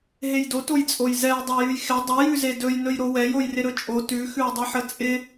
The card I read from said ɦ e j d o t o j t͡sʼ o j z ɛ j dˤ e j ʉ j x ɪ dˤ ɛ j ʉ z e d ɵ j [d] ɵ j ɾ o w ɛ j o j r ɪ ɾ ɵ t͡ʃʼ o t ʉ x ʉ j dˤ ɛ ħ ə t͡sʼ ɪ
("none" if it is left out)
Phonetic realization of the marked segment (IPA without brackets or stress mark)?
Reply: n